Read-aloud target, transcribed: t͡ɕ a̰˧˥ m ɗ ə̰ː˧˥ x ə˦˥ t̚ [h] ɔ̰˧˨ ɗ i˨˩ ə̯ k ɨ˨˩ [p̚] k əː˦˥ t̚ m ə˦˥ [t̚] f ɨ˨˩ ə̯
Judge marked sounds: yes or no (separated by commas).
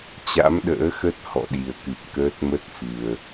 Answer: yes, yes, yes